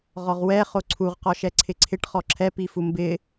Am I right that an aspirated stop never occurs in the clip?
no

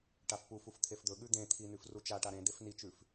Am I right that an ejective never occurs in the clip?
yes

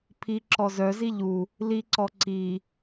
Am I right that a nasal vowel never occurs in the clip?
yes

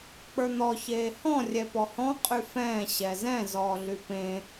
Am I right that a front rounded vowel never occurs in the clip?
no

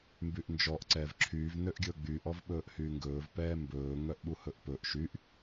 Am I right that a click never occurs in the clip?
no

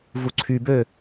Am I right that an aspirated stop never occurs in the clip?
no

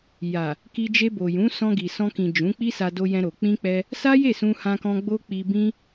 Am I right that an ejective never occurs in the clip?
yes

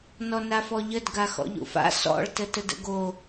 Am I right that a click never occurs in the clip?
yes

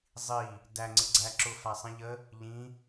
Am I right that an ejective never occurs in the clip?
yes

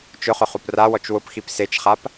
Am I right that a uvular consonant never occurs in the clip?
no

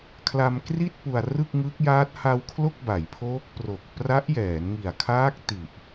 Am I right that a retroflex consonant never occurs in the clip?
yes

